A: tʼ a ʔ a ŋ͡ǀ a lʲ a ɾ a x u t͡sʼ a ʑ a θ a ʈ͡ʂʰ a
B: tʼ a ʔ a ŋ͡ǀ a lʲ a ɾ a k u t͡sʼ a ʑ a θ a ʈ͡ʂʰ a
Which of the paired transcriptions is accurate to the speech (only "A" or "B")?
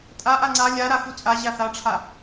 A